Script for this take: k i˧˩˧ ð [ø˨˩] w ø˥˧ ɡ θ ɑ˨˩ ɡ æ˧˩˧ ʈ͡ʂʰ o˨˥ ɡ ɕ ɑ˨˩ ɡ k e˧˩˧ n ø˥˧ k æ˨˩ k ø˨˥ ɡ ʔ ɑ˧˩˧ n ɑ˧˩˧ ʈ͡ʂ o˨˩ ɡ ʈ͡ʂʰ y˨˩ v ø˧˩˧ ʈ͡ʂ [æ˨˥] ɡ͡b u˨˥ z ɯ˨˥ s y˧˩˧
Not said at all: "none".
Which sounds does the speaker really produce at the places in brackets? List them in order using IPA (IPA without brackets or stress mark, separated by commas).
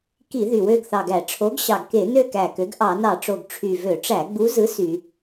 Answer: y˨˩, æ˧˩˧